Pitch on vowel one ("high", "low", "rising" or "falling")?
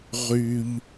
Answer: high